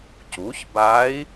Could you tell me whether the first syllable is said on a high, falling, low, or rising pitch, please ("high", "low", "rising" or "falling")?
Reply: rising